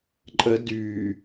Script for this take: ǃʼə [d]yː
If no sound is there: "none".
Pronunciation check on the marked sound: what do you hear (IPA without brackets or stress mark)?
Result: d